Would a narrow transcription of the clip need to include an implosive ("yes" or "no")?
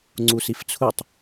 no